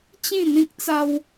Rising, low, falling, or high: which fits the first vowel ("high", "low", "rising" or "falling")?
falling